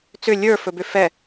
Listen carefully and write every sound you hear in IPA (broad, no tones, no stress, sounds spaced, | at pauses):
t͡s ʏ lʲ ə˞ f ɵ b ʏ f ɛ